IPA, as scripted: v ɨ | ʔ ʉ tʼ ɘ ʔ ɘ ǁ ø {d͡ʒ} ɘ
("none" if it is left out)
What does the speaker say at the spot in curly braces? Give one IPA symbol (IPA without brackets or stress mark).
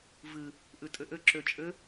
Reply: t͡ʃʼ